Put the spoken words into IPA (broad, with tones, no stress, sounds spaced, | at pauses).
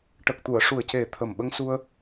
ʈ ə˨˩ k̚ t̪ u˨˩˨ ə̯ ʂ u˨˩ ə̯ c e˨˩ t̪ʰ ə˨˩ m ɓ ə˧ ŋ s u˧ ə̯